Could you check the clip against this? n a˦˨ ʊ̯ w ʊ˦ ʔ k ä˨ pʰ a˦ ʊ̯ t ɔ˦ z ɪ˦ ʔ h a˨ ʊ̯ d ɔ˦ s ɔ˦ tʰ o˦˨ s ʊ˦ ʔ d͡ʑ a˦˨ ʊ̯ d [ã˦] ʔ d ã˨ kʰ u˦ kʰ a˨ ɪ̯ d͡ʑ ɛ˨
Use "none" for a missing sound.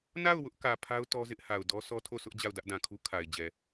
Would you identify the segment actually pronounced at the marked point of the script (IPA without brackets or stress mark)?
ä˦